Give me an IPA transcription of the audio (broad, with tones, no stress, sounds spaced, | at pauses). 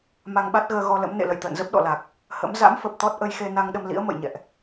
m a˧ ŋ ɓ a˦˥ t̚ ɣ əː˧ ɣ ɔ˧ l ə̰˧˥ m n ḛ˧˨ l ə̰˧˨ j t̪ ə̰ː˧˨ n z ə˦˥ p̚ ɗ ɔ̰˧˨ l a˨˩ k̚ | h ə̰˧˥ m z a̰˧˥ m f ə˨˩ p̚ t̪ ɔ˦˥ t̚ ʔ ə˧ j x e˧ n a˧ ŋ ɗ ə˧ m l ḭ˧˥ ə̯ m ə̰˧˨ j ɲ ɛ̰˧˨ ʔ